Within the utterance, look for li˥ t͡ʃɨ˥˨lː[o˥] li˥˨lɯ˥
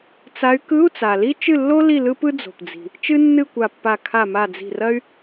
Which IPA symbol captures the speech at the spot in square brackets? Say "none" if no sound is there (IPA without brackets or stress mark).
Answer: o˥